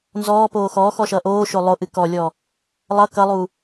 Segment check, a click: absent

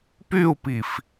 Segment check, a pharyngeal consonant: absent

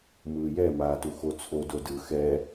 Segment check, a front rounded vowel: absent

